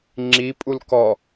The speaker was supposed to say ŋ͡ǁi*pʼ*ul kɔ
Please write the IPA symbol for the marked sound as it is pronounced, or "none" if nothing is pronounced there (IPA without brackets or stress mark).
pʼ